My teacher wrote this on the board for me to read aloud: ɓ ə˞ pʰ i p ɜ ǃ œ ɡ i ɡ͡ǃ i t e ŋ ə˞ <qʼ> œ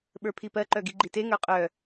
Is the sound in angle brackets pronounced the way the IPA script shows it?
yes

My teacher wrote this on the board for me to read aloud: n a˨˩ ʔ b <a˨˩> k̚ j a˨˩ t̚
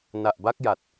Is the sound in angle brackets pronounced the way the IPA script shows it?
no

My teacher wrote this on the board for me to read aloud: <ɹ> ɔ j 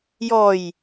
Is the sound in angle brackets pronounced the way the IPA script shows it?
no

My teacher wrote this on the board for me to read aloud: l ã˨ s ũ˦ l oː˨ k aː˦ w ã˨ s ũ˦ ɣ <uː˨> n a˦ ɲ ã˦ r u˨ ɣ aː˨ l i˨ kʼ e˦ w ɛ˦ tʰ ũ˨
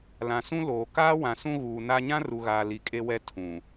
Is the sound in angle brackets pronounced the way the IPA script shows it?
yes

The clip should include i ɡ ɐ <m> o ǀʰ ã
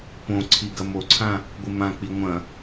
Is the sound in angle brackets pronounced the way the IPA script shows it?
yes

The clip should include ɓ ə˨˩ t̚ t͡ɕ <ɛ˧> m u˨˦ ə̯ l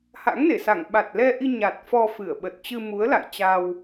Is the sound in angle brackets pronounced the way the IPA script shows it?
no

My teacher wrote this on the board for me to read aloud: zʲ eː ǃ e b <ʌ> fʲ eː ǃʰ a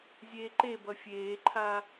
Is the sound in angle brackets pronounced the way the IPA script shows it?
yes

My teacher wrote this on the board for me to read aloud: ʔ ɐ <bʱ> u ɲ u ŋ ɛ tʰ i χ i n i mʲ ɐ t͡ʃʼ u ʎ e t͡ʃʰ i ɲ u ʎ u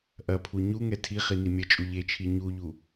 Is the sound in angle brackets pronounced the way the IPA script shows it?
no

